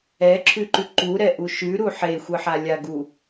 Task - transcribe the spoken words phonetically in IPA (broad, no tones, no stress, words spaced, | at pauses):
ɛǁʰʉǃʉ ǃuɾɛʔu ʃʉɾu ħexʷɯħalʲa ɡu